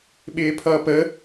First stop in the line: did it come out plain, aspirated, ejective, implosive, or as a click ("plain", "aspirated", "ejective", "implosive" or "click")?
implosive